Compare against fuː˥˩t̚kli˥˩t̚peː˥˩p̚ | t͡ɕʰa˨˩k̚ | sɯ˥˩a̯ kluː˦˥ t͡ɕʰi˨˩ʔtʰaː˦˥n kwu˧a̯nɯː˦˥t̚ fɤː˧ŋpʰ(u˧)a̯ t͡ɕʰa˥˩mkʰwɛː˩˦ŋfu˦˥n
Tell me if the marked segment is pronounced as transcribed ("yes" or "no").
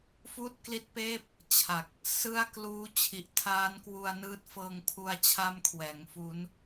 yes